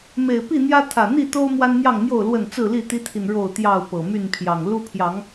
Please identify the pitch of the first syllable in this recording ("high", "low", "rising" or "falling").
low